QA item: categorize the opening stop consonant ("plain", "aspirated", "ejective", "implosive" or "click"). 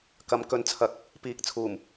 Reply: plain